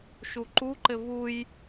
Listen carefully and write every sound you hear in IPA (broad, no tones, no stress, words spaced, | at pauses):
ʃuǃuǃɘ vuj